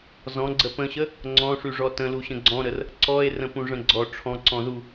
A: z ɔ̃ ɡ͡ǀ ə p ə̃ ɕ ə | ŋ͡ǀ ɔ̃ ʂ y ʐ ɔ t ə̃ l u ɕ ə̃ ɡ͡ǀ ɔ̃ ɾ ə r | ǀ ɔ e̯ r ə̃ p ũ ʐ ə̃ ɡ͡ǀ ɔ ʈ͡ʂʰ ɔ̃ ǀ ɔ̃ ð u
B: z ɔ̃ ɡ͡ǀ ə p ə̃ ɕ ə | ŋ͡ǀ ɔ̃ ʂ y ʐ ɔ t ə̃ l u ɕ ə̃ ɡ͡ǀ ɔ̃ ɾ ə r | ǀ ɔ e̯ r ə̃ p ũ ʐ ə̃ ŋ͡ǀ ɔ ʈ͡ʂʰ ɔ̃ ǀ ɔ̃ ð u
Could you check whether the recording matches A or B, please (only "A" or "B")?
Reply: A